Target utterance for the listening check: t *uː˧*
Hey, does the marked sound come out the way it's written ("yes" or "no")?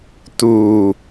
yes